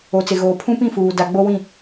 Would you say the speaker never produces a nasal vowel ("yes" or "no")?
no